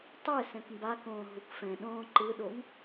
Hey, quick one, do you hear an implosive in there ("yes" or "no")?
yes